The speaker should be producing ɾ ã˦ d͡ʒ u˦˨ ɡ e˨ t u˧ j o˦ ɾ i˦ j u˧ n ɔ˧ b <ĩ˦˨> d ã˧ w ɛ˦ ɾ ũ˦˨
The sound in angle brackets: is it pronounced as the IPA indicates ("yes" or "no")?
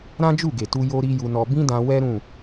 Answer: no